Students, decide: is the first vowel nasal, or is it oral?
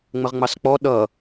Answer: oral